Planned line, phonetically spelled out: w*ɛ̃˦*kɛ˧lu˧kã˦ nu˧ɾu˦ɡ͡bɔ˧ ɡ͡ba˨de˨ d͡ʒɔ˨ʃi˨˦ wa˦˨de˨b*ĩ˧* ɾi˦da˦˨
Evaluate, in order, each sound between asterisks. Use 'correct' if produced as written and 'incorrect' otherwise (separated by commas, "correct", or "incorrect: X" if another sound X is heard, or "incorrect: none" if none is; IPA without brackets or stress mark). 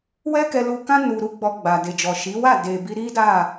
incorrect: ɛ˦, incorrect: i˧